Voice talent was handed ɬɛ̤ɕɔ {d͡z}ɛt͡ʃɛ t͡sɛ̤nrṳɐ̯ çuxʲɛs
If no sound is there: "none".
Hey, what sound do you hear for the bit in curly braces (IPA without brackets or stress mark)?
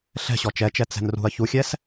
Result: t͡ʃ